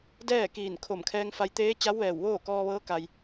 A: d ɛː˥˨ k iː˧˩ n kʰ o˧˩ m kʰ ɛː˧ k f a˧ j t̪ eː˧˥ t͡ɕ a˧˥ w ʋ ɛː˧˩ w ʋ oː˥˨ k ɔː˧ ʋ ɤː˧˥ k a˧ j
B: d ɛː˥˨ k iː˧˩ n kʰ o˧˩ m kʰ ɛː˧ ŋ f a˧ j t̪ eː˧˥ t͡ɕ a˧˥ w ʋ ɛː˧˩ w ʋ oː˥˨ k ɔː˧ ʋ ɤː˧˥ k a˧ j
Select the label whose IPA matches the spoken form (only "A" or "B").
B